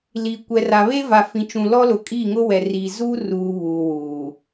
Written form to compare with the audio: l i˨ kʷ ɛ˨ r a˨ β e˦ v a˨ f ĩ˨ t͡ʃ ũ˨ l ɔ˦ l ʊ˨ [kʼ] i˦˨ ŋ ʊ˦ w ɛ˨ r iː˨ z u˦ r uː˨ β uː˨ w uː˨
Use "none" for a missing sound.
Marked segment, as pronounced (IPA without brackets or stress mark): kʼ